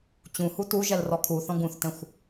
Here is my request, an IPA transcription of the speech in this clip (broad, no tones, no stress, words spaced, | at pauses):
t͡ɕũhu tuʒɛl rɔkʰuθɔ̃ ɡũθtɛ̃xʷ